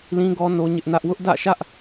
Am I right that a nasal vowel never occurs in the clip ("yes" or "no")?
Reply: no